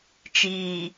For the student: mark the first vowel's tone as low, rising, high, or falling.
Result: low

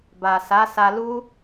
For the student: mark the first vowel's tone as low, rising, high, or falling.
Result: low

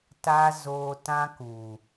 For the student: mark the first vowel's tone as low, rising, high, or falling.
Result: high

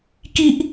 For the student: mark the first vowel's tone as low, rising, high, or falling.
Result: high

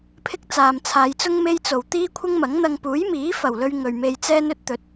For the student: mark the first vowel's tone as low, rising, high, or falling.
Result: high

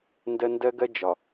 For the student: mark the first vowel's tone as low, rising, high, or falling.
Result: high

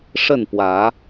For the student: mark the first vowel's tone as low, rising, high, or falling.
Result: falling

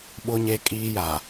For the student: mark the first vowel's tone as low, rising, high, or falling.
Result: high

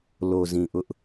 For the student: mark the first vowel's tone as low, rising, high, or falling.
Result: low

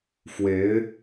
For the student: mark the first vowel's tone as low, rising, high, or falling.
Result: rising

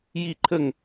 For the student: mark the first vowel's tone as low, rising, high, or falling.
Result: falling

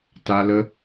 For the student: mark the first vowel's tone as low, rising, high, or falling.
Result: high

